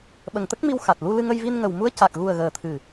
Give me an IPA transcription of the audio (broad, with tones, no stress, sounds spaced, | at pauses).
ɓ ə˨˩ ŋ t̪ ə˦˥ k̚ m i˧ w x a˨˩ t̚ l u˧ l ɨ˧ ŋ ə˧ j v i˧ n ŋ ə˨˩ w m u˧˥ ə̯ c a˨˩ k̚ ɣ u˨˩ ə̯ ɣ əː˨˩ t̪ʰ ɨ˨˩